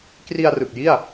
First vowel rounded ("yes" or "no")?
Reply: no